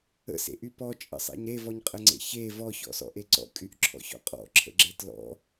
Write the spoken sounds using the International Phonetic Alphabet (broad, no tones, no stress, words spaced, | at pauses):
ə̰sḛʔy pɔt͡ʃʼə̰sˤḛɲ ɾevɔɲqʼəŋ͡ǀḛ çe vɔçɔ̰sɔ̰ʔe ǀɔ̰kʼyʔǁʰɔ̰çɔ̰ qʼɔ̰ǁʰə̰ɡ͡ǁe tlɔ̰